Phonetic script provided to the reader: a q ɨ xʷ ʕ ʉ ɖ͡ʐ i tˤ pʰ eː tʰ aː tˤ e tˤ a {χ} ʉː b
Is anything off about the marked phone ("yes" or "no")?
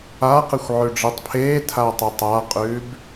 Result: yes